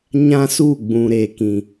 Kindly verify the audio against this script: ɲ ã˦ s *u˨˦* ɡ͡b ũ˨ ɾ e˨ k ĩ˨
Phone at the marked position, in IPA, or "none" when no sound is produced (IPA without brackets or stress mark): u˦˨